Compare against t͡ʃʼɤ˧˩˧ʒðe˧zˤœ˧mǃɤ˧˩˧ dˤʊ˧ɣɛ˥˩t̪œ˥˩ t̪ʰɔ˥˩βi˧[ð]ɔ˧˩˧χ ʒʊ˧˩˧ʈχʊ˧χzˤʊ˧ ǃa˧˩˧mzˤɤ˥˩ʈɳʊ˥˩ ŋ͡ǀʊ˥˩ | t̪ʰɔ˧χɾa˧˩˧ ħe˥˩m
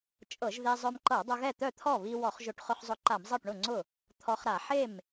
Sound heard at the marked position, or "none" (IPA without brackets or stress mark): w